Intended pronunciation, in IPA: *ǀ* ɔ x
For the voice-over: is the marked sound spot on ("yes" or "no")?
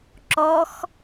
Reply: no